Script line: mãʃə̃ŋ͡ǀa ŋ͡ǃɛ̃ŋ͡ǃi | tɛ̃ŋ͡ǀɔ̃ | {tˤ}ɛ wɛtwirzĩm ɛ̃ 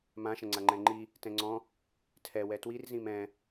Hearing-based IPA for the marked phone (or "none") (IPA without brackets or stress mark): tʰ